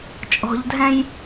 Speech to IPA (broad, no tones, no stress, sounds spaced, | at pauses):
t͡ʃʼ ɔ̤ ʎ dʱ ɛ̃ j